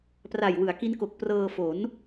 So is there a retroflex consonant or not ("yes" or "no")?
no